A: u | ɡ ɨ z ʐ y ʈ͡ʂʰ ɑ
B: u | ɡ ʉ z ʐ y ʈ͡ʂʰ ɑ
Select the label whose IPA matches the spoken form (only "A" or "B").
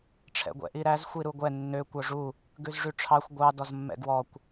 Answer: B